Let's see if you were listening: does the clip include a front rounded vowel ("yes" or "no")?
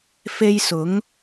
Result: no